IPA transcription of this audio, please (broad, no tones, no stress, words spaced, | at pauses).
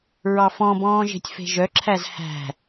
ɹɑfɔ̃bɔ̃ː ʒe̤tʲfe̤ʒœǁʰæz hæ̤